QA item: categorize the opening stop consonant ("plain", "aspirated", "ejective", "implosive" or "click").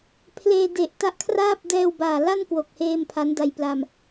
aspirated